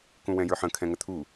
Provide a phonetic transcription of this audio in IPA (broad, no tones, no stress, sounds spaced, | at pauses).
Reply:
k ũ w ɛ̃ j ə˞ ħ ə̃ kʰ ɛ̃ ŋ ə t̪ʰ u